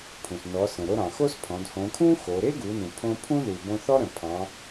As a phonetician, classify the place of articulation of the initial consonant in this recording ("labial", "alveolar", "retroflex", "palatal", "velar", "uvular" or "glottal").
labial